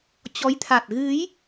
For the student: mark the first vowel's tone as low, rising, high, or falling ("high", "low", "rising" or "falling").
rising